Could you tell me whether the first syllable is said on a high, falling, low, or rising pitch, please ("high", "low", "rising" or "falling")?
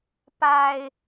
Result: low